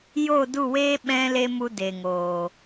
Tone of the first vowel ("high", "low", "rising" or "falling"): falling